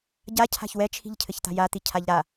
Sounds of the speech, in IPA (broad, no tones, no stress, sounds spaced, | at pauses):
ɟ a cʰ a̤ ç w ɛ t͡ʃʰ i̤ ʎ cʰ ɘ ç t̪ a̤ j a t̪ i cʰ a ʎ ɾ a